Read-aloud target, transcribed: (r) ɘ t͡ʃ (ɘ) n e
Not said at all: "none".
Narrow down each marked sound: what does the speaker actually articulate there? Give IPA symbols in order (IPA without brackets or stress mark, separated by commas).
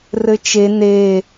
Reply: r, e